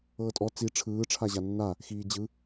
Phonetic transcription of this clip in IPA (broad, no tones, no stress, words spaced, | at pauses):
ɤːtʼɔ t͡si ʈ͡ʂʰɯː ʈ͡ʂʰaʑanːa | xiːd͡ʑɯ